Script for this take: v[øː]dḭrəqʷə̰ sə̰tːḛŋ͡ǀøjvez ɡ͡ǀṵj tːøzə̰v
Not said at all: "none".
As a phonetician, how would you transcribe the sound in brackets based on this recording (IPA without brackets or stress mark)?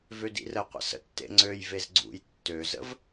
ø